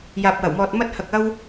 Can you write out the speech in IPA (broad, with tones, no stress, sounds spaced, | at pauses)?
j aː˨ p̚ w ɐ˨˩ w m ɔː˨ t̚ m ɐ˧ t̚ h ɐ˨ k̚ ɐ˧ w